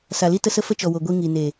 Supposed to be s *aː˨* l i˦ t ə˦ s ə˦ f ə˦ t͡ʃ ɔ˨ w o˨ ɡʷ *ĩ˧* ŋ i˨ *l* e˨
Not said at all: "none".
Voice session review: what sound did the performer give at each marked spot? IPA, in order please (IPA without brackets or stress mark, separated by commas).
a˨, i˧, n